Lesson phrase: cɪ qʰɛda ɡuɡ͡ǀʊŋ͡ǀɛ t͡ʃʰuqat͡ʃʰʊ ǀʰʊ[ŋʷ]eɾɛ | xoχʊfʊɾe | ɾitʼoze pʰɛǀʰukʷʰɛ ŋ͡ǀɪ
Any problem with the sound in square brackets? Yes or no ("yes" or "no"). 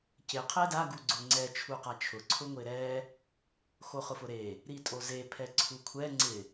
no